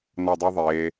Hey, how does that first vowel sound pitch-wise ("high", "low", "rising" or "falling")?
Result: falling